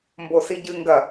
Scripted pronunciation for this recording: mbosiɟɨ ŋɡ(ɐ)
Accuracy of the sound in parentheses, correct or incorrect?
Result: correct